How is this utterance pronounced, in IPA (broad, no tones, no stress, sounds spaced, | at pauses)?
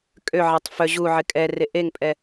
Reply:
kʼ ø ʕ ɛ tˤ f œ ʑ u ʕ ɪ kʼ ɛ r e ʔ e ŋ pʼ ɛ